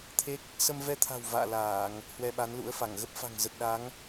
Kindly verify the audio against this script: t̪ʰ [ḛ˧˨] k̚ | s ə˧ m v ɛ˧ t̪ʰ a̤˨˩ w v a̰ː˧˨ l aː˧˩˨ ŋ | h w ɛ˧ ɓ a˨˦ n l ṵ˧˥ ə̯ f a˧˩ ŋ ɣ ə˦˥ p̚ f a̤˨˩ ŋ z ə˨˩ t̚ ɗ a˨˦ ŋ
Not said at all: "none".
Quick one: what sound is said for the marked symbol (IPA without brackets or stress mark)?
e˦˥